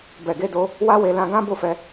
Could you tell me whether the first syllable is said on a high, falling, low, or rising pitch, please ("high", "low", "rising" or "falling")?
low